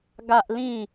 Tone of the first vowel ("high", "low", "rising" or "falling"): high